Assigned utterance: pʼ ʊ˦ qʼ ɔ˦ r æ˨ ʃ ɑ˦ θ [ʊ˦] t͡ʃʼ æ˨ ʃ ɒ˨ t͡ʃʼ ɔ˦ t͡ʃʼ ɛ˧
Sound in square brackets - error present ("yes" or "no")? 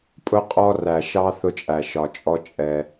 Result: yes